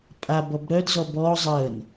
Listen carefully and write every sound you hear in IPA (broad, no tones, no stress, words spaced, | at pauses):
pʼa bɔbɾœdzɔ bɔ zˤəːn